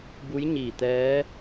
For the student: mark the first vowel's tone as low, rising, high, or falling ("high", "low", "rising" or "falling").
rising